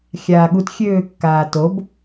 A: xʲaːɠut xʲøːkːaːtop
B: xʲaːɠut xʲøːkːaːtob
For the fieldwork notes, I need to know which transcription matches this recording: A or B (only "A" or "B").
B